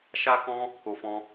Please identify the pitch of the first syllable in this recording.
high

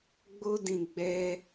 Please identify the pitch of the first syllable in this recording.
high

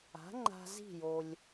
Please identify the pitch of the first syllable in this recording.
rising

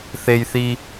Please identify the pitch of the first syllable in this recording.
low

